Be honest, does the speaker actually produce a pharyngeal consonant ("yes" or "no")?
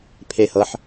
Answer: yes